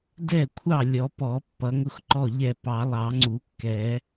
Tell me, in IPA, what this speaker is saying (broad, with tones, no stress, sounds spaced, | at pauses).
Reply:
d ɛ˥˩ kʷʰ ɑ˥˩ lʲ ɔ˨˩˦ p ɔ˨˩˦ pː ʌ˨˩˦ ŋ ʊ˥˩ x ǃ ɔ˥˩ ʎ ɛ˥˩ p ɑ˨˩˦ lˠ ɑ˨˩˦ ŋ͡ǀ u˨˩˦ kː ɛ˨˩˦